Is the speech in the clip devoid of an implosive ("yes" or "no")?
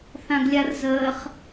yes